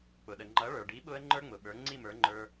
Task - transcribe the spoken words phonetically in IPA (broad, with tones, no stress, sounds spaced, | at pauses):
k͡p ʊ˩ ɗ ə˩ ŋ͡ǃ ʌ˩˥ ɭ ə˞˩ ɖ i˩˥ ɓ ʊ˧ ə̯ ŋ͡ǃ ə˞˥ ŋ͡m ʊ˩ ɓ ə˞˩˥ ŋ͡ǀ i˥˩ m ə˞˩˥ ŋ͡ǃ ə˞˧